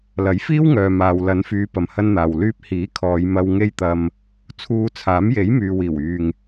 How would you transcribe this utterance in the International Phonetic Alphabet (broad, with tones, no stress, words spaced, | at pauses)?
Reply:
lɐ˨˥jfiː˥wŋœː˨ maː˨w lɐ˨˧nfyː˨˧ pɐ˨mhɐ˧nn̪aː˨w lyː˧p̚hiː˨˥ kʰɔː˨˧jmɐ˧w ŋe˥jt̪ɐ˧m | t͡sʰuː˧t͡sʰaː˨˥m je˨˥jmyː˨wiː˨˩wyː˨ŋ